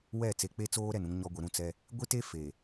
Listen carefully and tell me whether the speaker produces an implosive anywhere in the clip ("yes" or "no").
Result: no